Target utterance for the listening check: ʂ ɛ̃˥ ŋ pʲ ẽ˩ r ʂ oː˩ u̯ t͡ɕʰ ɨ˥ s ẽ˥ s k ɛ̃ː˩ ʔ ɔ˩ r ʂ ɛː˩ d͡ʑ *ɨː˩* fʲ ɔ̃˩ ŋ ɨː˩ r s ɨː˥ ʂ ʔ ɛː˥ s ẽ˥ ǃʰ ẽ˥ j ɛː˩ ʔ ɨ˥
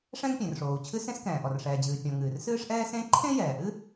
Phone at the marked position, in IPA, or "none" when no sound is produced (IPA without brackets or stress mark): ɨː˩